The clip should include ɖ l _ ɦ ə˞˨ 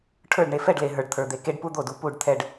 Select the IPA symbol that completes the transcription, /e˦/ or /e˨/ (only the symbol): e˨